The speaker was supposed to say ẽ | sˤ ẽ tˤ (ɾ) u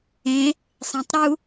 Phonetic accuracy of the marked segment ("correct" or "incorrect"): correct